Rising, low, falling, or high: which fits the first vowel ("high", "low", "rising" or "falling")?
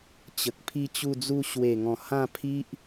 low